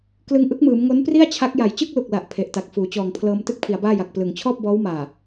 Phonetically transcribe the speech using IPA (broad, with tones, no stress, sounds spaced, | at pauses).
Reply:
k l ɯ˧ ŋ ʔ ɯ˦˥ k̚ m ɯː˩˦ m ŋ o˦˥ n p r i˥˩ a̯ t͡ɕʰ a˦˥ k̚ j a˨˩ j t͡ɕ ɯ˥˩ k̚ l u˨˩ k̚ l a˨˩ ʔ pʰ e˨˩ ʔ t a˨˩ k̚ f uː˩˦ t͡ɕ ɔː˨˩ ŋ pʰ l ɤː˧ m t ɯ˥˩ k̚ pʰ i˩˦ a̯ b aː˥˩ j a˨˩ k̚ p l ɯ˨˩ ŋ t͡ɕʰ ɔː˥˩ p̚ b ɔː˦˥ w m aː˨˩